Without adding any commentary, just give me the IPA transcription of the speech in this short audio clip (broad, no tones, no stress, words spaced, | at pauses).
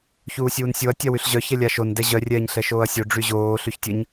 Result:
çuːsʲuːnsʲoɐ̯ tʲawyɬʑœ çɛlʲaʃon dɛʑœ rʲɛːɲɬɛʃoːɐ̯sʲo ɖ͡ʐyʑoː ɬyçtʲəɲ